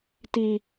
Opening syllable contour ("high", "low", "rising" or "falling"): high